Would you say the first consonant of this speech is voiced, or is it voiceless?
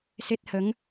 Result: voiceless